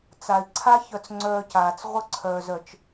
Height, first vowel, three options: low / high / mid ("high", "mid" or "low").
low